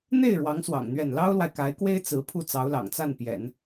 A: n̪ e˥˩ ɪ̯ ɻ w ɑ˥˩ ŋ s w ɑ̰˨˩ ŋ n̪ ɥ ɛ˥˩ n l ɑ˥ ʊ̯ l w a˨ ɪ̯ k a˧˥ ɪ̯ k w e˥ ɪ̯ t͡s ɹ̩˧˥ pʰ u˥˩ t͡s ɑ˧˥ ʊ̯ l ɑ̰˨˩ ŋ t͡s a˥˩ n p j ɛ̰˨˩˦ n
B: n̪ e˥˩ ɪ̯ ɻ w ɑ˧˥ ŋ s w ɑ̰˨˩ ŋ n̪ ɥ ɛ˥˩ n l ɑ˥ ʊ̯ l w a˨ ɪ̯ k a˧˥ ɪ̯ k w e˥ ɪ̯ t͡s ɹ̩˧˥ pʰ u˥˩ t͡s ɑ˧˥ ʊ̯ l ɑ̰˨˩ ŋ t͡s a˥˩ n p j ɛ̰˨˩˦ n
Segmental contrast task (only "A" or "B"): B